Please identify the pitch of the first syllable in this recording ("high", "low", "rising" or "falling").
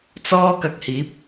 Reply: high